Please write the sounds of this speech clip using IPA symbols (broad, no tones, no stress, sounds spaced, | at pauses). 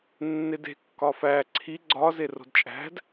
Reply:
nː e d e̤ kː ɒ f æ ǀʰ i ɡ͡ǀ ɒ z e r o̤ d t͡ʃʼ æ̤ d